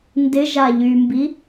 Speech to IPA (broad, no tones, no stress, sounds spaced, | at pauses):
n d ɪ ʒ a ʎ y m b i